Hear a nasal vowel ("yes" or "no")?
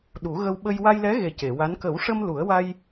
no